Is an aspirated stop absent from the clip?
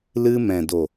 yes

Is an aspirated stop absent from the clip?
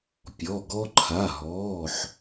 no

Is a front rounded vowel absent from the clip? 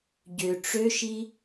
no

